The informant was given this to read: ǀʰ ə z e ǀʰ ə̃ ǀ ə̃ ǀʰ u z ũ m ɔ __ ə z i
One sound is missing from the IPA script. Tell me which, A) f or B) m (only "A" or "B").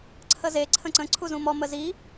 B